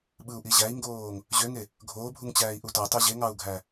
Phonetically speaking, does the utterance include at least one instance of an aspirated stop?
no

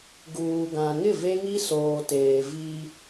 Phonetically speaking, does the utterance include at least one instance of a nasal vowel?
yes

